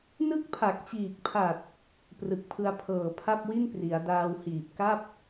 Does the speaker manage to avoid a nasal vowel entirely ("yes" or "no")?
yes